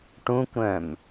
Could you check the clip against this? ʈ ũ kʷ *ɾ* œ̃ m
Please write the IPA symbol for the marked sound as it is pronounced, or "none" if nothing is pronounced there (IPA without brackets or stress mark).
ɾ